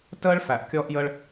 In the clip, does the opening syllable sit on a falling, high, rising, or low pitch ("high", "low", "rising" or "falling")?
high